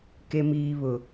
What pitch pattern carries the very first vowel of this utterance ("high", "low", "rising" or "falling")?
high